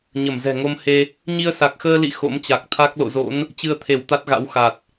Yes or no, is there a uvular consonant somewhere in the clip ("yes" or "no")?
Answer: no